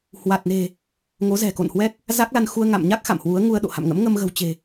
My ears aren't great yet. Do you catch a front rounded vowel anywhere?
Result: no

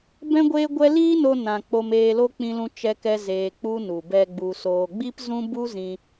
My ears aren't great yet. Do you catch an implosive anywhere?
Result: no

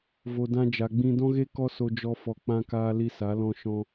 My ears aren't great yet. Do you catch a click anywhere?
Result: no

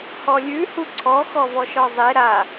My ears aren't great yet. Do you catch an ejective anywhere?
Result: no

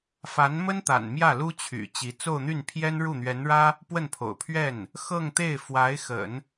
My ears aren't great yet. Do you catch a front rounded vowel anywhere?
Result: yes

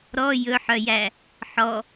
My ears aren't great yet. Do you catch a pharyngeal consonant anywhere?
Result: yes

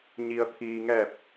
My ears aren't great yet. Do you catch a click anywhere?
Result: no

